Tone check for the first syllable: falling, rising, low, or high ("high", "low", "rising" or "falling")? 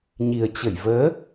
low